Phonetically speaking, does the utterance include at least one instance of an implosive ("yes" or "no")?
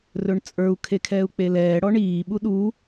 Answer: yes